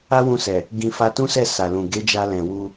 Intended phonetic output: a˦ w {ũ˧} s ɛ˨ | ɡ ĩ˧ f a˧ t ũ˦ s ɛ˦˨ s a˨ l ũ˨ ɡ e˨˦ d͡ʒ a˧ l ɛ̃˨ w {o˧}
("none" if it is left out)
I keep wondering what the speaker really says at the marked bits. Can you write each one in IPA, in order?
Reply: ũ˧, u˧

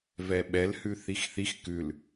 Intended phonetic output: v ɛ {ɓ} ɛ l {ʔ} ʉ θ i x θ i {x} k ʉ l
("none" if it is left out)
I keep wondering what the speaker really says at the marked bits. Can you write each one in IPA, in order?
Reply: ɓ, h, x

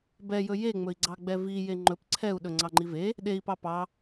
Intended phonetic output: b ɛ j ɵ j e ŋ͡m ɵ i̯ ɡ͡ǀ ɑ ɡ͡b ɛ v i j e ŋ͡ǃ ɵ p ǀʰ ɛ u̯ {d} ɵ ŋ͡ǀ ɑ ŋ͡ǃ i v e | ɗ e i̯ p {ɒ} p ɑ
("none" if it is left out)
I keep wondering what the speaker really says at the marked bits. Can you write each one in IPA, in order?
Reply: ɗ, ɑ

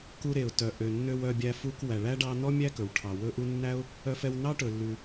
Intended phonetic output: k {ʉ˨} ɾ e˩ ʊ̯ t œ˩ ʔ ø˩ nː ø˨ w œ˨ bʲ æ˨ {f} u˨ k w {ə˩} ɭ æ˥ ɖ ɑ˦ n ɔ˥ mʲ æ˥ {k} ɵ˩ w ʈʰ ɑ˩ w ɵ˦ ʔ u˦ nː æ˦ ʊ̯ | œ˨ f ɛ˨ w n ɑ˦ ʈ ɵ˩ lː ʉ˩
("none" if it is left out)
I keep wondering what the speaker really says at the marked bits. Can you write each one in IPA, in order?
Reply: u˨, f, æ˩, k

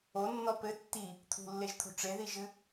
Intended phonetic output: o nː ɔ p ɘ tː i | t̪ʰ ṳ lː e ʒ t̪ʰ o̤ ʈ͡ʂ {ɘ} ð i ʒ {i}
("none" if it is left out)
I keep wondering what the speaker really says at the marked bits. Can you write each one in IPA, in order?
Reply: e, ɨ

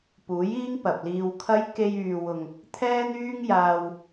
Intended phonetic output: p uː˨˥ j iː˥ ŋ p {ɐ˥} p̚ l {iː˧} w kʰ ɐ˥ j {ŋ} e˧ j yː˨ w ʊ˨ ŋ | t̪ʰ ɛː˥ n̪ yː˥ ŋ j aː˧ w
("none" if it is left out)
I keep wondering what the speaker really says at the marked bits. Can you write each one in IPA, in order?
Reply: ɐ˨, iː˧, k

